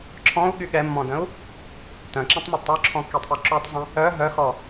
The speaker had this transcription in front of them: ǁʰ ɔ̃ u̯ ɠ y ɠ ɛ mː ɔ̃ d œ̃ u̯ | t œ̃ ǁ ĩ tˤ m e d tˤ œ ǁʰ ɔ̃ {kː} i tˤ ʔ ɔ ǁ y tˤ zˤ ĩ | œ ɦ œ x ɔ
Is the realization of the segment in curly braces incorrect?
no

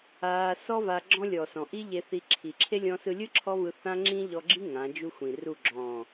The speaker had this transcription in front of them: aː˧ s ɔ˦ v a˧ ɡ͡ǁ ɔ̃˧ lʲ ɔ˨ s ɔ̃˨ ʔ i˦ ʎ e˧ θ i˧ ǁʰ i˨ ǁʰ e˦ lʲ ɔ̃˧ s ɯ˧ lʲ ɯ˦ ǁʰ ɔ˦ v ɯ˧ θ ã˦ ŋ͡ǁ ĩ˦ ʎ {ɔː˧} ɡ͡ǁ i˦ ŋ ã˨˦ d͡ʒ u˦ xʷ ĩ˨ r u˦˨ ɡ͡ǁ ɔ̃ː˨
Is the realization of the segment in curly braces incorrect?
yes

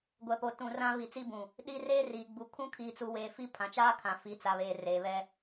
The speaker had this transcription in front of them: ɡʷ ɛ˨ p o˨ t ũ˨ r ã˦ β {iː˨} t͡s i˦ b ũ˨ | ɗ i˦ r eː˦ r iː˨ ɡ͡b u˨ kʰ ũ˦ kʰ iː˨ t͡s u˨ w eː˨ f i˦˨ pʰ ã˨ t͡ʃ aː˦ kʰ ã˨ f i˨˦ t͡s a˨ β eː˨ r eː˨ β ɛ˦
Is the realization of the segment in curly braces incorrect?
yes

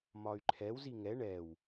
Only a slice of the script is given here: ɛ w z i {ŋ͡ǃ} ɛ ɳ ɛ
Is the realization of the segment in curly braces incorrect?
yes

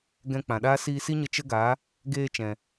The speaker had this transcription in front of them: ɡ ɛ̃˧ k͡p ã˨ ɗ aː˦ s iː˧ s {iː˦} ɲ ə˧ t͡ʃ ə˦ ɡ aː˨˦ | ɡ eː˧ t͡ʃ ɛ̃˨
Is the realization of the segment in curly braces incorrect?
yes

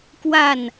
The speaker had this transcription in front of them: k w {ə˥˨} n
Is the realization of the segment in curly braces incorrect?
yes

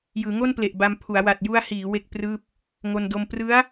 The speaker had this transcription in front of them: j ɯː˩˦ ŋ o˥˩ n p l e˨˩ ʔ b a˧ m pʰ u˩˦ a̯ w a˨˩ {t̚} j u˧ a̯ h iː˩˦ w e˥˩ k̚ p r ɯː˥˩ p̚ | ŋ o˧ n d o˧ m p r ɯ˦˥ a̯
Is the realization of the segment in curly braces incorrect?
no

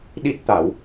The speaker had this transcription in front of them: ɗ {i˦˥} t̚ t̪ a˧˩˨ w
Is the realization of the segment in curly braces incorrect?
no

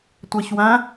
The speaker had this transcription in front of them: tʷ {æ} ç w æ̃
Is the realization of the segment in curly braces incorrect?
no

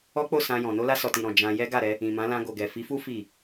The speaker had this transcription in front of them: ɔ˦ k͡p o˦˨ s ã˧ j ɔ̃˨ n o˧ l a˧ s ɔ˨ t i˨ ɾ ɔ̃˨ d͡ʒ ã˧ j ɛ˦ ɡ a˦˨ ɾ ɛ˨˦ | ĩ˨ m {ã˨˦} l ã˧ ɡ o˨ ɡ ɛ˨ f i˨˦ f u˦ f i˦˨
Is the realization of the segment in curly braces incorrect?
no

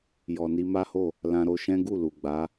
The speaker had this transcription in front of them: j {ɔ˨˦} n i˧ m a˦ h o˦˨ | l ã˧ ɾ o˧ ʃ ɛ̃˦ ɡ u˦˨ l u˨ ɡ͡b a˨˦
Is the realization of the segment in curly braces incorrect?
yes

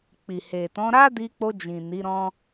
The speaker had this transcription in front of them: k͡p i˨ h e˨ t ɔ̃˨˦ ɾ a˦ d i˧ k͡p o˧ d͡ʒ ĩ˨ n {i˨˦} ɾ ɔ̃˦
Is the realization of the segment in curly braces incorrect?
no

